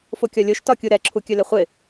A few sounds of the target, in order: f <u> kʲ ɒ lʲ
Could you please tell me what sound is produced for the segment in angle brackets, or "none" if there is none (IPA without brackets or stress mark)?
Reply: o